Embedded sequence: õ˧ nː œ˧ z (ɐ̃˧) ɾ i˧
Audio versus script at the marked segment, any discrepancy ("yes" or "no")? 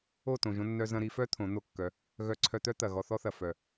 no